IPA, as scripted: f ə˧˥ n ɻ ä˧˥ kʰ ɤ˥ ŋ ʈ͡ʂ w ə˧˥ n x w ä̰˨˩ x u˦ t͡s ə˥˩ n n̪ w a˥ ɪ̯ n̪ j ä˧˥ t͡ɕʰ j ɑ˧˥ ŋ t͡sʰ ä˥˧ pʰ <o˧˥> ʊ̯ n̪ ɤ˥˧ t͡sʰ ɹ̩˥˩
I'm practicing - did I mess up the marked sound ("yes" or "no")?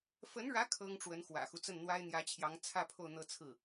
yes